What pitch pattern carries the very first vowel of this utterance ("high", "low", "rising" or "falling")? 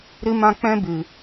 high